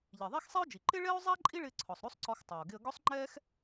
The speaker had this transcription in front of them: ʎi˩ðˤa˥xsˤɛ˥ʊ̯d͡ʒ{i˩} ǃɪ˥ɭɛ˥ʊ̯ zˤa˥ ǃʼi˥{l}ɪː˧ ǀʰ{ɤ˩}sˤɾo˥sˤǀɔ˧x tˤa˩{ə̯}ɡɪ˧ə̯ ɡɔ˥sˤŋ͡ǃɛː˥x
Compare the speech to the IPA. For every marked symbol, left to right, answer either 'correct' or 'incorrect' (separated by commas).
correct, incorrect, incorrect, incorrect